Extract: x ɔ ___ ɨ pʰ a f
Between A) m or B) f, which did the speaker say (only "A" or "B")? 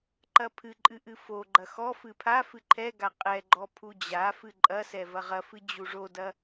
B